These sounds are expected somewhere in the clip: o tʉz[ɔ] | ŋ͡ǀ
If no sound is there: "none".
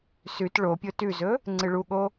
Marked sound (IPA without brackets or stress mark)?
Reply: ɵ